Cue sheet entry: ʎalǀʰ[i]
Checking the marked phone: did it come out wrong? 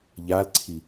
no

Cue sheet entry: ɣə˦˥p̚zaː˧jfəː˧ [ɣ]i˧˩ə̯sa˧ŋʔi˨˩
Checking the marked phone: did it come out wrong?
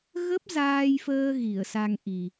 no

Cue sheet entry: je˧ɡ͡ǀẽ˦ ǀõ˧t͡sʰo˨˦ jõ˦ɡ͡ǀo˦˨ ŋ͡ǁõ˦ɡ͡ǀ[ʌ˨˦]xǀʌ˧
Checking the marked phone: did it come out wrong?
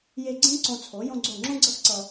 yes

